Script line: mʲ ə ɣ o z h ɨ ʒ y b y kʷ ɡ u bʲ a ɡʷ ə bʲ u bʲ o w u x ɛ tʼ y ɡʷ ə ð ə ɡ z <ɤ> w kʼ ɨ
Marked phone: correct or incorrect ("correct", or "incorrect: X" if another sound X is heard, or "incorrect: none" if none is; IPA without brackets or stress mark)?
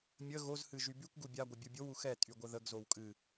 incorrect: o